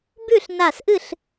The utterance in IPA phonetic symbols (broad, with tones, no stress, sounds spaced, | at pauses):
b ʉ˥˨ ɬ n a˧˩ s ʔ ɨ˥˨ ɬ